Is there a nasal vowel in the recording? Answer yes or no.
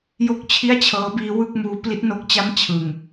no